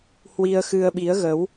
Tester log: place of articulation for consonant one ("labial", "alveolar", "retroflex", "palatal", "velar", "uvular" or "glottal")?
glottal